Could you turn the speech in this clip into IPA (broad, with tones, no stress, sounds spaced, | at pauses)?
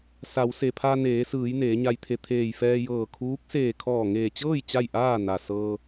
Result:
s a˩˧ w s e˩ pʰ a˧ n eː˩˧ s ɯː˩˧ j n eː˩˧ ɲ a˧ j t̪ʰ e˧˩ t̪ʰ eː˧˩ j f ɛː˧ j ɤː˧˩ kʰ uː˧˥ k̚ s eː˧˩ kʰ ɔː˧˩ ŋ eː˧˩ t͡ɕ ɤː˥˨ j t͡ɕ a˥˨ j ʔ aː˥˨ n a˩ s ɤː˧